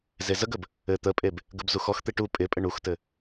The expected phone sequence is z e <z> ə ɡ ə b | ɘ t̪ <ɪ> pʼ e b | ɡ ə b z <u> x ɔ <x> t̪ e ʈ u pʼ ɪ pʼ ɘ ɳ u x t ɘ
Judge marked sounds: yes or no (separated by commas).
yes, no, yes, yes